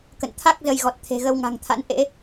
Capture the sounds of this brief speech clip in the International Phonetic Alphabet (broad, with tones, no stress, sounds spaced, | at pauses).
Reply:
k ə̰˧˨ n t̪ʰ a˦˥ k̚ z ə˧ j ɣ ɔ˨˩ t̚ t̪ʰ e̤˨˩ ɣ ə˧ w ŋ a̤˨˩ ŋ t̪ʰ a̰˧˥ n ʔ ḛ˧˥